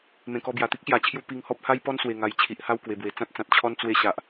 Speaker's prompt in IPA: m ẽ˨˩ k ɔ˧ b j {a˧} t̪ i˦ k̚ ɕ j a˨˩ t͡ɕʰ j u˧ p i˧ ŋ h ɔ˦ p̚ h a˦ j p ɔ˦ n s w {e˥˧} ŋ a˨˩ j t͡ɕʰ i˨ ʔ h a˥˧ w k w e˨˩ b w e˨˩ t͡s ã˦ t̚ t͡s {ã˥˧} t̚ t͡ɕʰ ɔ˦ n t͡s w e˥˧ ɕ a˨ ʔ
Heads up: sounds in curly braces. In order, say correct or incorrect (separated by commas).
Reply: incorrect, incorrect, incorrect